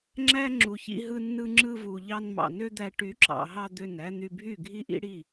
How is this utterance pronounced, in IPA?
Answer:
ŋ͡ǁæ˦ ŋ͡ǁu˨çḭ˧ɦɯ˧ nːɯ˧ŋ͡ǁɯ˧ vu˨ʎɑ˧n mɑ̰˨nø˦d̪æ˧ ʈy˨˦ǁɑ̰˨ɦɑ˧ d̪ø˦˨næ˦ n̪y˧bʱy˦˨ ɡʱi˦ʔḭ˦ɽi˦˨

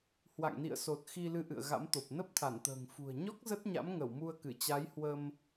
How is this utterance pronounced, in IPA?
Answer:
hwa̰˧˨ŋnḭ˧˨ə̯so˨˩t̚ xi˧lɨ˧ʔɨ̰˧˨ə̯ ɣa̰˧˥mt̪o˨˩p̚ nə˦˥p̚t̪ʰa˧˩nt̪ə̤ː˨˩ŋ fṳ˨˩ə̯ɲɔ˦˥k̚ zə˦˥t̚ɲa̰˧˥mŋə˧˩w mu˧ə̯kɨ˧˩t͡ɕa˨˦j hwə˧m

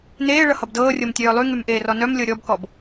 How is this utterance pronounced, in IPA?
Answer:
neː ɭʌhʌbdɤːrʲɤm tʲœːlˠyŋym ʔeːrɔnœmlʲɤ ɾʲɔbkɔb

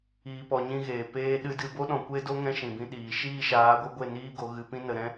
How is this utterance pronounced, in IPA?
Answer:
iː˨pɔ˨ ɲĩ˧ɣeː˨ peː˧ɗɨ˧dɨ˧ bo˦ɗɔ̃˨kʷe˦do˦ ŋɛ̃˦ʃĩ˨bĩ˧ ɗiː˨ ʃiː˦˨ʃaː˨˦ɡʷɨ˧ɡʷe˦˨ niː˦ɡo˨˦ ɣɨ˨pĩ˦nə˨ɾɛ̃˦

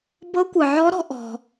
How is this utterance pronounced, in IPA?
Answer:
bɤ˧˥kʷɯ˩ʕɔ˧˥ɾɔ̤˩˧ ʔɔ̤˩

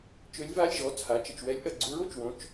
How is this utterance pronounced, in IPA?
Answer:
t͡ʃø˧˥lʲva˧˥˧lʲʒɔ˩˧˩ t͡sʰa˩˧˩t͡ʃə˥˩t͡ʃwɛ˧˥lʲʔɐ˩˧˩ ɡ͡ǀu˧˥ɹo˩˧˩t͡ʃwõ˩˧˩t͡ʃ

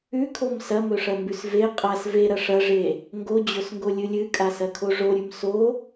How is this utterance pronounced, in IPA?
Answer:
ʉkʰom sɐmɵʂɐmbʉs ve qʼas veɾɐ ʂɐʐe | ŋɡod͡ʑosŋɡolʲɨ lʲɨkʼasɐkʰo ʐoɾʲʉm so

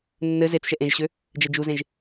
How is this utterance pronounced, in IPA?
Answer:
nːɘ zet͡sʃɛ ʔẽʒɕø | d͡ʒɛd͡ʒuzẽʒ

